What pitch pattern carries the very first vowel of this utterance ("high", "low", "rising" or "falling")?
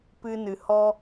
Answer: high